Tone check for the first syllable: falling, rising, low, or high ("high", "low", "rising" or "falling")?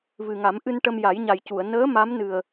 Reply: low